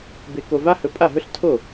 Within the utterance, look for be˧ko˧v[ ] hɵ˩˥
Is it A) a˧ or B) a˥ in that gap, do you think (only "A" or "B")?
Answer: B